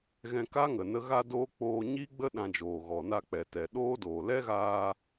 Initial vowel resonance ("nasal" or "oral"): nasal